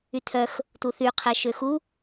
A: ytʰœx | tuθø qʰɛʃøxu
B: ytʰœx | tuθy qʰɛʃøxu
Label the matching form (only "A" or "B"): B